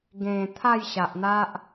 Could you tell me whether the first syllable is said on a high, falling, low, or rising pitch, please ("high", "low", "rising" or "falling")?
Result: low